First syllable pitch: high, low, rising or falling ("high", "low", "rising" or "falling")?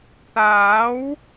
rising